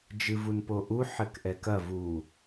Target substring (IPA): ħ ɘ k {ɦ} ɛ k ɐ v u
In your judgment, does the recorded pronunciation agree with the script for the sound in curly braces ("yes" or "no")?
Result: no